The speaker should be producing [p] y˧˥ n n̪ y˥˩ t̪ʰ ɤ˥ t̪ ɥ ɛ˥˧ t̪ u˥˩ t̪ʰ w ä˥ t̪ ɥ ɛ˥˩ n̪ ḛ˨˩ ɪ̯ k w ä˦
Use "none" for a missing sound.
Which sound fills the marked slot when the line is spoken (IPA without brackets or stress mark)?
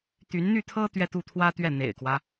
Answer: t̪